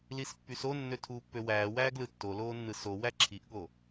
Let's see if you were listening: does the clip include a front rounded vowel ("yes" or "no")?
yes